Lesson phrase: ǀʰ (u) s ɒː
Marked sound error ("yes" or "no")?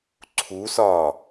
no